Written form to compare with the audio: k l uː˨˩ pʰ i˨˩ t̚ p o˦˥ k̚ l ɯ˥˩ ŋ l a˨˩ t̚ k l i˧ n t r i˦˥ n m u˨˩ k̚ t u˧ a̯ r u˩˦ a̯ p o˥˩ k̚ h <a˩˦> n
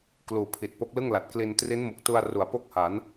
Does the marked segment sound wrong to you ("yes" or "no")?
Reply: no